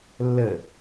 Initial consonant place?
alveolar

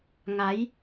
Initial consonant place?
velar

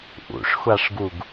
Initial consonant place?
glottal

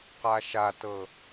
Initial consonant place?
uvular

